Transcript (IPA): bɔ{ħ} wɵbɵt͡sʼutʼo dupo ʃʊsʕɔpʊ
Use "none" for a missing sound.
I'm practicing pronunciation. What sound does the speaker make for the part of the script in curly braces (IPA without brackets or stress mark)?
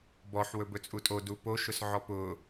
ħ